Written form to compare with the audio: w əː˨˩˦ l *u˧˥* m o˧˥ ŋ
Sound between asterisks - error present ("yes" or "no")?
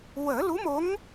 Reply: no